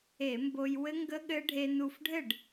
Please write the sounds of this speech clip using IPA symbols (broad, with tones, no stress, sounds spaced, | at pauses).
e˧˩˧ m b o˧ j w ɘ˦˥ ŋ ɡ ə˦˥ ɠ ɘ˦˥ ɖʱ e˧ n u˧˩ f ɖʱ ɘ˥˩ ɖ